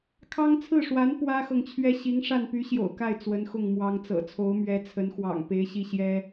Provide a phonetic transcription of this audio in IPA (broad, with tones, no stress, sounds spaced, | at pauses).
kʰ ɑ˥ ŋ t͡sʰ ɹ̩˥˩ ʂ w a˧˥ n p w ä˥ x ɤ˨ ŋ t͡ɕʰ ɥ ɛ˥ ɕ i˧˥ ŋ ʂ a˥˩ n p y˧˥ ɕ j o̰˨˩ ʊ̯ k a˥˩ ɪ̯ t͡s w ə˧˥ n x ʊ˥˩ ŋ m w ɑ˥ ŋ t͡s ɤ̰˨˩ t͡sʰ o˧˥ ʊ̯ m ɥ ɛ˧˥ t͡sʰ ə˧˥ n x w ɑ̰˨˩ ŋ p e˧˥ ɪ̯ ɕ i˥˩ ɕ j ɛ˥